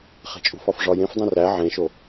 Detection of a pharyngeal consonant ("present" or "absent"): present